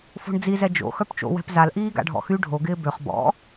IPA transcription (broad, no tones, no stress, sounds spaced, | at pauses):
f o̤ ɳ d͡z i z ɛ d͡ʒ o̰ x œ p t͡ʃ o̰ w ɛ̤ p z a l ʔ iː ɡ a̰ ɖʱ ɔ̰ x y ɖʱ o ɡ ɪː b ø χ b ɔ̰